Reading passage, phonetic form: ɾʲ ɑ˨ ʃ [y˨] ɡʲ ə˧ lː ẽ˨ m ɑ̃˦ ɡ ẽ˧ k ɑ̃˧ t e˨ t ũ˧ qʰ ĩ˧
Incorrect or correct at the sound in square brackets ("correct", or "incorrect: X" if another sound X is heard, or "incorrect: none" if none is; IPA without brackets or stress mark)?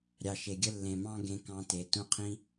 incorrect: e˨